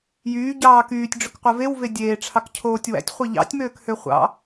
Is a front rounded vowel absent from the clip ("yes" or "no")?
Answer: no